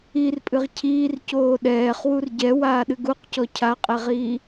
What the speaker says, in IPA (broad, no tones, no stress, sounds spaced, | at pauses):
i r pʼ ɨ ʁ cʰ iː r c oː ɗ ɛː χ w u r ɟ ɛ w aː ɗ ɨ ɡ u q c ɔ cʰ a qʼ ɛ ʁ iː